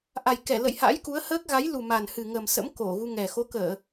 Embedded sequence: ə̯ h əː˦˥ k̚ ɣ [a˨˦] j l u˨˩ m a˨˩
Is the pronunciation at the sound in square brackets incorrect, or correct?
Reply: correct